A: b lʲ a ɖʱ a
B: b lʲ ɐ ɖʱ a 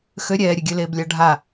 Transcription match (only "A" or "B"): A